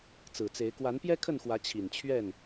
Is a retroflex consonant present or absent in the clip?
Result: absent